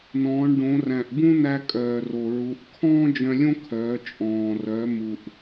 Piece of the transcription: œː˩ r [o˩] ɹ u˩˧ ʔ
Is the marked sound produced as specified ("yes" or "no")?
yes